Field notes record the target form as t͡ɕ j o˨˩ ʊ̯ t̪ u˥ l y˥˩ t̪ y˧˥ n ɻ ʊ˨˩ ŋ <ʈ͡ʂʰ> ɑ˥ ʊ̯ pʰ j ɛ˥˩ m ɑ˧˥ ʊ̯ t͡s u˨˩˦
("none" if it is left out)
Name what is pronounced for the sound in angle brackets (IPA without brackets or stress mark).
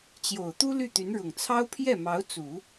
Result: t͡sʰ